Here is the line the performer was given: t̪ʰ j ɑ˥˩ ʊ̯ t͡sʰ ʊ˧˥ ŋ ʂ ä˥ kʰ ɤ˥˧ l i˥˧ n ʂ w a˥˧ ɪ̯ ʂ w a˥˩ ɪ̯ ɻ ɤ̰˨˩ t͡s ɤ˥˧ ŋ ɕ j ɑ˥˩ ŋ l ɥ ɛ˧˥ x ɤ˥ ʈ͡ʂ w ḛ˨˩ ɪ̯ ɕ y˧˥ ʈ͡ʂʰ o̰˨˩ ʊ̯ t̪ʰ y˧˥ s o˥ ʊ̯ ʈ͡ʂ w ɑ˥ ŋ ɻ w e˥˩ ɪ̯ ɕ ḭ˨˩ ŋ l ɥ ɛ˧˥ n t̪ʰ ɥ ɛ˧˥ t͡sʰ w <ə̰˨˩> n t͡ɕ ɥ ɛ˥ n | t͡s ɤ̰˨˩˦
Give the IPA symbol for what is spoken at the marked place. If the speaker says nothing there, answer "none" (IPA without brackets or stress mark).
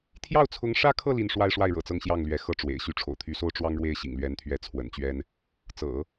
ə̰˨˩